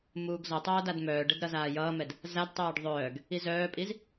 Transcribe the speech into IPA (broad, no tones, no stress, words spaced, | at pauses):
muːɡzʌtˤʌː dadmœːɖɛd ɾʌzaːjʌːmɛd | zadtˤœːɖ ðˤœːɡ | izœːpʼiz